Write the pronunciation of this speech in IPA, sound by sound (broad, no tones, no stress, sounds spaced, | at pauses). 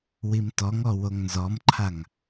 w i m t ɔ ŋ ɔ w o ŋ n z ɔ m ǃʰ a ŋ